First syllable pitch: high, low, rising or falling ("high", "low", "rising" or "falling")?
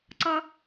high